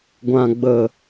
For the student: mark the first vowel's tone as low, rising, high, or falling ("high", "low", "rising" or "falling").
low